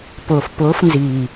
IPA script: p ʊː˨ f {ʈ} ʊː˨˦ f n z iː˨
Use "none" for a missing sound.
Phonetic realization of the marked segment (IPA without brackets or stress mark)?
p